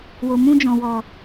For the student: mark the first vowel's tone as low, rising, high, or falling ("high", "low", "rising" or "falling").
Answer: low